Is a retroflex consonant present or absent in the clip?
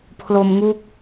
absent